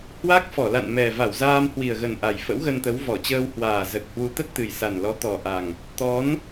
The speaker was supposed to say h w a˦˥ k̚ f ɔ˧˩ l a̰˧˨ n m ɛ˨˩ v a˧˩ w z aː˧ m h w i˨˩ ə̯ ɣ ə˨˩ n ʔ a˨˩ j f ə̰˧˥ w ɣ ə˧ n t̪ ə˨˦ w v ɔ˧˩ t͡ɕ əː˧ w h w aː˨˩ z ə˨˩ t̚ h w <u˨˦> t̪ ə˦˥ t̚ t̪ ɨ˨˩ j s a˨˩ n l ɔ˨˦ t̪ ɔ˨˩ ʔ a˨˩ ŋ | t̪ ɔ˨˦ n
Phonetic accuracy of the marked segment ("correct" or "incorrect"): correct